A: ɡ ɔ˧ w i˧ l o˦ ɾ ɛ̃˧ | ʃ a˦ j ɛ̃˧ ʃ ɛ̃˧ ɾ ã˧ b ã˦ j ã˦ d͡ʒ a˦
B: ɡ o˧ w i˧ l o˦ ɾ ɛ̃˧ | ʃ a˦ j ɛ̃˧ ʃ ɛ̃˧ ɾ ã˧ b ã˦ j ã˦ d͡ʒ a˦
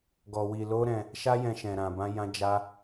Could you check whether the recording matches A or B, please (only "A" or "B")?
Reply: A